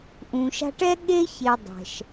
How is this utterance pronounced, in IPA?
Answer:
ʔ ũ˨ ʃ a̤˦ ʈ ɛ˥ ɠ e˦ ç e˨ dˤ ɛ̤˩ ʃ

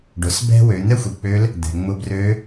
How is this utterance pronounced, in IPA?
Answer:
ɖ ʊ˩˧ s b ɛ̤˥ w ø˩˧ n̪ ɛ˥ xʷ i˩ k͡p ø˧˥ l | d̪ ɛ̤˩ ŋ͡m ʊ˧ b r ø˧˥

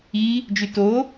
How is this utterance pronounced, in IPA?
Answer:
i | d͡ʒ y t o

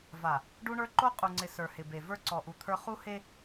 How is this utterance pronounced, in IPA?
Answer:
v a˨ | ɖ u˦ ɳ ə˞˦ ǃ o˦ qʼ u˨ ŋ͡ǀ ɪ˨ s ə˞˨ h ɪ˨ b e˨ v ə˞˦ ǀ ɔ˨ ʔ u˨ t̪ʰ ə˞˦ χ u˦ h e˦

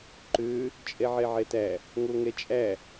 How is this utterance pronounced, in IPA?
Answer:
ǃ ø | t͡ʃʼ ɛ ʕ ɛ ʕ ɛ t æ | ŋ o ŋ ɛ t͡ʃʼ æ

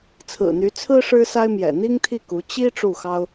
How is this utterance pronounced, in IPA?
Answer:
t͡sʰ ɹ̩˨˩ n̪ y˧˥ t͡sʰ ɹ̩˥ ʂ ɻ̩˥ s a˥ ɪ̯ m j ɛ̰˨˩ n̪ i˥ ŋ t̪ʰ i˥˩ k u˧˥ t͡ɕ i˥ ʈ͡ʂ u˥˩ x ɑ˥ ʊ̯

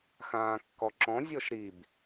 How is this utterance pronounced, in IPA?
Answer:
x ãː kː ɔ ǁ ɔ̃ zʲ ɔ ʃ ɾ i b

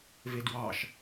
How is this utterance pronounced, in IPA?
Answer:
v e d w ɑ ʃ

